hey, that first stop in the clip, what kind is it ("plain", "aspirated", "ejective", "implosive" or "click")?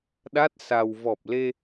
implosive